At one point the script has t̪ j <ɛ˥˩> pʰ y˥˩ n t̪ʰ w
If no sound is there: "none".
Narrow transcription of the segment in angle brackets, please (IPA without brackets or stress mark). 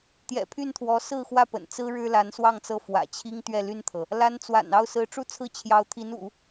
ɛ̰˨˩